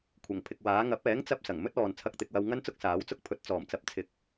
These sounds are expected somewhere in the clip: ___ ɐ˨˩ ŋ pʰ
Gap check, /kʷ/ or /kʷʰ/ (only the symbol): kʷʰ